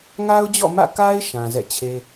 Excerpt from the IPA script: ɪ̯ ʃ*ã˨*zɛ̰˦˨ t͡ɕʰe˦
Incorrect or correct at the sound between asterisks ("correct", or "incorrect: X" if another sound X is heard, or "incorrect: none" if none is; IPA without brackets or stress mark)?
correct